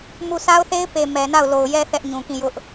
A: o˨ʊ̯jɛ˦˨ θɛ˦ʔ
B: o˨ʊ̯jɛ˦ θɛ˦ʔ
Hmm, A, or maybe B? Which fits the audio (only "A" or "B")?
B